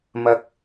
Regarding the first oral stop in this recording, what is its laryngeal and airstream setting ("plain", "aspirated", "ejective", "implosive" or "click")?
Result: plain